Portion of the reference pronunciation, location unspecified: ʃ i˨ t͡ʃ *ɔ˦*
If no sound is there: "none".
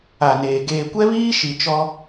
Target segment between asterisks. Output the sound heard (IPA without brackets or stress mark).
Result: ɔ˦